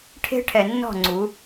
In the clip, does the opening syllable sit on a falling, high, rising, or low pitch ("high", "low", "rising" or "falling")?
high